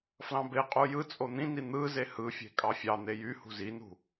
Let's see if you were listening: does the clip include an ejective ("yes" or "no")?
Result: yes